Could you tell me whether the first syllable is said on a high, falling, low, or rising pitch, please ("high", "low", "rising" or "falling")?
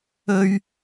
high